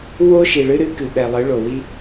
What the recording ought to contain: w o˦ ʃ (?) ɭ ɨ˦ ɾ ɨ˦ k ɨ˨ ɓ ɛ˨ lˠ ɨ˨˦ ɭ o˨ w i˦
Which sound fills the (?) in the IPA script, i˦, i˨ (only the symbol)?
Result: i˨